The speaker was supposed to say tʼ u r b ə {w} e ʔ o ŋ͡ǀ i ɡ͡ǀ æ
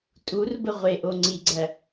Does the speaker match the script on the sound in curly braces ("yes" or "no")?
no